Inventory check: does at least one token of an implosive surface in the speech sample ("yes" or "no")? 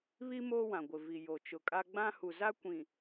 no